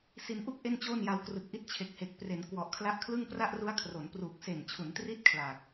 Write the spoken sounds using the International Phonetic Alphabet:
s i˧ n ʔ u˥˩ k̚ ʔ e˥˩ n t͡ɕ oː˥˩ n j a˧ w k r ɯ˨˩ k̚ ʔ i˦˥ t̚ t͡ɕʰ e˨˩ k̚ h e˨˩ k̚ p r e˩˦ n k w ɔ˨˩ ʔ kʰ l a˦˥ ʔ kʰ l ɯ˥˩ ŋ p r a˥˩ ʔ r u˦˥ a̯ kʰ r o˩˦ n p r uː˨˩ k̚ s e˨˩ n t͡ɕʰ u˩˦ n t r i˦˥ t̚ kʰ l aː˨˩ k̚

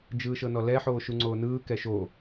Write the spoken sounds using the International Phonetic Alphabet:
d͡ʒ ɯː ʃ ɤ n ɔ l ɛ ħ oː ʃ u ŋ͡ǀ oː n ɯː k ɛ ʃ o

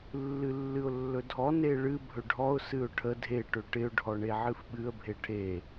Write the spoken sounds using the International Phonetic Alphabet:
lː ɨ lː ɨ ʊ̯ lː ɵ dʱ ɔ n e ɭ ɨ bʱ ɵ ɖʱ ɔ ʊ̯ s ɨ ʊ̯ ʈʰ ə dʱ e ʈ ɵ ʈ ɪ ʊ̯ ɖʱ ɔ ɳ e ʕ ɨ f ɓ ɨ ə̯ bʱ e ʈʰ e

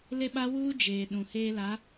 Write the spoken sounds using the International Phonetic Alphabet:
l e˦ ɓ a˦ w uː˦ d͡ʒ eː˨ ɗ ũ˨ h eː˦ l a˨˦

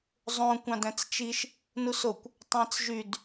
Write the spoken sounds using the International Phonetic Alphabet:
zˤ õ kʷ ɑ̃ d æ̃ t͡s t͡ʃ i ʃ | n u s o kʷ | tˤ æ̃ t͡s ʒ y d

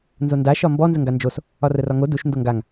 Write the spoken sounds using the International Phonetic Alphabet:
n z o n d a ʃ ɒ m b ɔ n z ə ŋ ɡ a n d͡ʒ o s | ɒ r ə r ɒ ŋ o d u ʃ n d o ŋ ɡ a ŋ

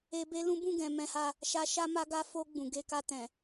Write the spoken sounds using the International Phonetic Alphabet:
e˧ b e˦ l ũ˦ b ũ˦˨ ɡ ɛ̃˨ m ɛ̃˧ h a˧ | ʃ a˧ ʃ a˦ m a˧ ɡ a˧ f o˧ ɡ͡b ũ˨ ɡ e˧ k a˧ t ɛ̃˨

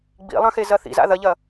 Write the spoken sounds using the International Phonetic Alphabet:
ɡ͡b ḭ lˠ ɐ̃ x e z ɐ θ ḭ z a̰ ð ɐ ʎ ɐ

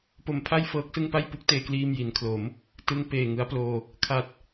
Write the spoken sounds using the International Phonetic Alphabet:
p o˧ m pʰ a˥˩ j f ɤː˦˥ k̚ s ɯ˥˩ ŋ p a˥˩ j p u˦˥ k̚ t eː˧ k l iː˧ m j i˩˦ n kʰ l o˩˦ m | t ɯ˧ ŋ p eː˨˩ ŋ ɯ˦˥ a̯ p l oː˧ | kʰ a˨˩ t̚

